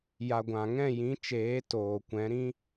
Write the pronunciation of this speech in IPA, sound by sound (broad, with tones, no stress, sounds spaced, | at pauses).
j a˨ ɡʷ ã˨ ŋ ɛ̃˦˨ j ĩ˨˦ t͡ʃ eː˨˦ t oː˨ kʷ ɛ̃˨˦ ɾ ĩ˦